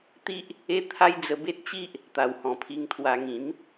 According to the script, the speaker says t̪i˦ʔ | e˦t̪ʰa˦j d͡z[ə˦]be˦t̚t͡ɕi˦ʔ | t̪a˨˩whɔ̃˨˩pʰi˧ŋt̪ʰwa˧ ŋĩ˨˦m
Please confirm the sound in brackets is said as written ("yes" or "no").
no